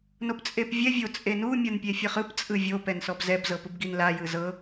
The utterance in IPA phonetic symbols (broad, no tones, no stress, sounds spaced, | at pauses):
n o p t͡sʼ e p vʲ ɛ vʲ o t͡sʼ e n u mʲ ɤ n pʲ e fʲ ɤ χ ɯ p t͡sʼ ɯ vʲ o p ɛ n s ɔ b z ɛ b z ɤ p ɯ b ɡ i n l a j ɯ z ɤ